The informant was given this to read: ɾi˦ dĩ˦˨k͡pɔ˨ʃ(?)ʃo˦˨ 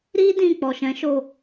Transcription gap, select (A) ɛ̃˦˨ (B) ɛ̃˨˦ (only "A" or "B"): B